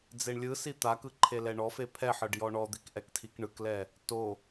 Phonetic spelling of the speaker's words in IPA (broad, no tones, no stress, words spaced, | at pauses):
d͡zeɳlʲɯsi t̪akɯ ǃʰelɛɳɔfe pʰɛħɤɖ jɔɳɔd̪ik ʔɛktʰikɳɯklɛ | to